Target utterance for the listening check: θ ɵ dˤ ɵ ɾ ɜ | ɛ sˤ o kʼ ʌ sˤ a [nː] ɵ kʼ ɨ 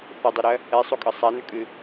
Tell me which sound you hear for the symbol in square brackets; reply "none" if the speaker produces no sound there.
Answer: n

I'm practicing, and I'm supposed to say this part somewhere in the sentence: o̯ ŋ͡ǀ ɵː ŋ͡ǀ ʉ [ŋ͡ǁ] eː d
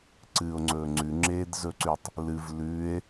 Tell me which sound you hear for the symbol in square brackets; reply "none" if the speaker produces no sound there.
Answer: ŋ͡ǁ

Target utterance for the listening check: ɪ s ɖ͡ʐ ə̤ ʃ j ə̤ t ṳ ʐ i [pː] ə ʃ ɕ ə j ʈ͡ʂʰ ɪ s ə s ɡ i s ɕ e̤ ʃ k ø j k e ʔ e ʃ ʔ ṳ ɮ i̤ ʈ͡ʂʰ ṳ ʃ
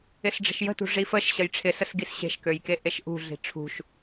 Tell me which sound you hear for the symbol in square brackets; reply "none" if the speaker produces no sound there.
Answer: f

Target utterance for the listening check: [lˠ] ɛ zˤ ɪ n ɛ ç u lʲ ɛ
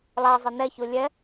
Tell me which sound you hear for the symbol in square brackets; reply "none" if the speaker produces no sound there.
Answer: lˠ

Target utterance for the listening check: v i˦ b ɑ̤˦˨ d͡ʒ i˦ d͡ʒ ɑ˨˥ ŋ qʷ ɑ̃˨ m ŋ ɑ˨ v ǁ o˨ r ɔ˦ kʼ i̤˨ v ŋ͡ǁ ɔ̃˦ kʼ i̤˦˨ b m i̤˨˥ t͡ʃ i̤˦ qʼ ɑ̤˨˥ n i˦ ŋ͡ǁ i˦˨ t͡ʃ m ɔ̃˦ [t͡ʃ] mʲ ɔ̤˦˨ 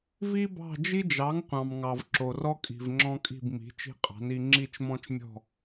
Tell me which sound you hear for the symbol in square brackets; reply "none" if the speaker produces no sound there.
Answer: t͡ʃ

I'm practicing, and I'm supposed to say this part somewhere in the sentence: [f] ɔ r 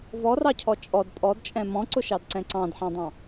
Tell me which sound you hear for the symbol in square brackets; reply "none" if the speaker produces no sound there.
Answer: v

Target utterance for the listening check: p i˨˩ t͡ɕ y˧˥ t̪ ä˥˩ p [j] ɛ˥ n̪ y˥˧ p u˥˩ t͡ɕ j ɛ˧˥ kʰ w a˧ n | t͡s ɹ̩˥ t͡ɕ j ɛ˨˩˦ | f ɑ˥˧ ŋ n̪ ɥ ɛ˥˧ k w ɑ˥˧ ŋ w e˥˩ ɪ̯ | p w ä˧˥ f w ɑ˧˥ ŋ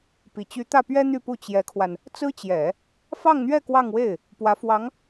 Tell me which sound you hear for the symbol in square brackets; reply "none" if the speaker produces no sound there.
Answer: ɥ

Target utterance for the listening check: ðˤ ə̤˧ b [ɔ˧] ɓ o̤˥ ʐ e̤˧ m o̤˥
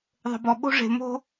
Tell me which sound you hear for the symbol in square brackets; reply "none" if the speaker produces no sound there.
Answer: ɔ˧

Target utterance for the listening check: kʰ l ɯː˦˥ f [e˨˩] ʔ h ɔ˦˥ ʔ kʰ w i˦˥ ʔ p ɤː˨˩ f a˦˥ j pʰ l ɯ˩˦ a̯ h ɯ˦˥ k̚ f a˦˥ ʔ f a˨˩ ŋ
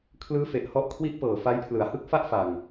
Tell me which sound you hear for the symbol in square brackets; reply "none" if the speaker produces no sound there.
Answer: e˨˩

